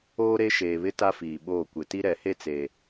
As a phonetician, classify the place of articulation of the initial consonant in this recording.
alveolar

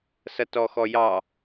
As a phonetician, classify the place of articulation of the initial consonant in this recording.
alveolar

